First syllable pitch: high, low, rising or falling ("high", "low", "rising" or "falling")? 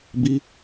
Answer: high